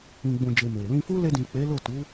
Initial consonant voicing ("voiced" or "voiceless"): voiced